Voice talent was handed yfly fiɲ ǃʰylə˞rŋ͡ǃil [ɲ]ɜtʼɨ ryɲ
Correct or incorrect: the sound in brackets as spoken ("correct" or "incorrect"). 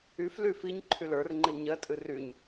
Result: correct